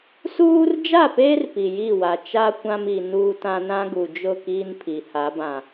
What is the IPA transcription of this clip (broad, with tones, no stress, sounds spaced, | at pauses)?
s uː˦ r d͡ʒ a˦˨ p eː˦ r p i˨ j i˦˨ w a˨ t͡ʃ a˦ kʷ ã˦ m i˨ n uː˦ t ã˦ n ã˦ ɡ u˨ d͡ʒ ʊ˦˨ k iː˦ n pʰ i˨ h a˨˦ b ã˨